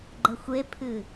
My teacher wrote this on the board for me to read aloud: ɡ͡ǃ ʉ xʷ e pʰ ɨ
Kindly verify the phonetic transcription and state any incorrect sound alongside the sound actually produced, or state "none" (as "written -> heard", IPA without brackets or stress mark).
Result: ʉ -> ə